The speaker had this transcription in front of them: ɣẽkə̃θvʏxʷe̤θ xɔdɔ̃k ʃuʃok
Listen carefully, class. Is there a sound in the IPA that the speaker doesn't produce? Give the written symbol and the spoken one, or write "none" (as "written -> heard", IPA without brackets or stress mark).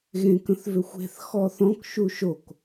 d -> θ